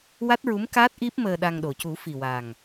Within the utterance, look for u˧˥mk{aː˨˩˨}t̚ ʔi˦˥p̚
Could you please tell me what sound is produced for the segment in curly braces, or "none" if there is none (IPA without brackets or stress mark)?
aː˦˥